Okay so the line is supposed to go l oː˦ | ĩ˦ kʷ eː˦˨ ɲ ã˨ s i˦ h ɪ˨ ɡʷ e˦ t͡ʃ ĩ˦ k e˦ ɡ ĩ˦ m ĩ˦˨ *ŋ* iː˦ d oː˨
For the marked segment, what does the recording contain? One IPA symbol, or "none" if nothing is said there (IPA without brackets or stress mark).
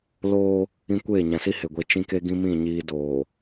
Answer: ɲ